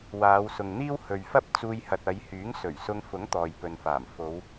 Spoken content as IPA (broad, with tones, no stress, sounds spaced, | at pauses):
w aː˨˧ w s ʊ˨ ŋ n̪ iː˥ w h ɵ˨ ɥ f ɐ˥ p̚ t͡s uː˧ j h ɐ˨ t̚ ɐ˨˧ j h yː˨˥ ŋ s ɵ˨˩ ɥ s ʊ˧ ŋ f ʊ˨˥ ŋ t̪ ɔː˨ j p ɵ˨ n f aː˨˩ m f o˨˧ w